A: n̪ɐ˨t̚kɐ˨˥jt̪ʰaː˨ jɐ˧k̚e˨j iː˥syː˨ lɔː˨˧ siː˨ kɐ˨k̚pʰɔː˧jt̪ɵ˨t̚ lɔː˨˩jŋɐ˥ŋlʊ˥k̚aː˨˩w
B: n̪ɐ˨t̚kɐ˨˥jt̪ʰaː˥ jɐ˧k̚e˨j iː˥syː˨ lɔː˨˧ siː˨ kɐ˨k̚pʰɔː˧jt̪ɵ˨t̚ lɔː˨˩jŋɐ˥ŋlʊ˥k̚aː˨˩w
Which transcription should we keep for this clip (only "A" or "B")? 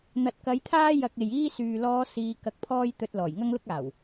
B